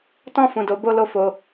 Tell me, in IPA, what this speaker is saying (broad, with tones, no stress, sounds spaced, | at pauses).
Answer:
t ɔ̃˦ f ũ˧ d o˧ b o˦ l o˦ f o˧